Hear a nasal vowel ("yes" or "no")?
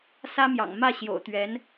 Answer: no